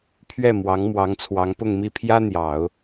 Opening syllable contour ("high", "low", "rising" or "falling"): falling